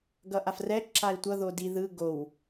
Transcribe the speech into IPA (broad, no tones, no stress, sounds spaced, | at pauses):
ɡ ʌ ʔ a f r ɛ ǁ a i̯ tʷ ʌ ð o d i ð ɯ ɡ o w